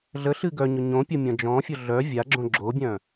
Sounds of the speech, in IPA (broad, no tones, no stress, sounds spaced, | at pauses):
ɮ ə ɬ ɨ ɡ œ ɲ ʊ ɲ õ pʲ ʊ mʲ ɔ̃ d͡ʒ ɔ̃ fʲ ʊ ɮ œ vʲ a ɡ͡ǁ õ ɡ͡ǁ o bʲ œ̃